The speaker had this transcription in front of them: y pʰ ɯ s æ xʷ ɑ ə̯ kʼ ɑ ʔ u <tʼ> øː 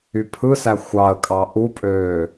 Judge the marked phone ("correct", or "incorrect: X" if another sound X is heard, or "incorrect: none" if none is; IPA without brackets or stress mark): incorrect: pʼ